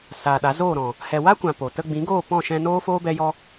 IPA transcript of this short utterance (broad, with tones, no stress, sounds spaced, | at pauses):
s aː˨ ɗ a˨˦ z oː˦˨ ɾ ɔ̃˨ | h ɛ˨ w a˦ kʷ ã˨ p o˨ t ə˧ ɡ͡b ĩ˨˦ ɡ oː˦˨ p ɔ̃˦˨ ʃ ɛ̃˧ n oː˦ f oː˦ b ɛ˦ j ɔ˦